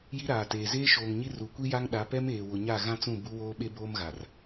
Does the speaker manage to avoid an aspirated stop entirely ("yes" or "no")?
yes